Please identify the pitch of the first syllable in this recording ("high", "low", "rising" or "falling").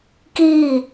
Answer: falling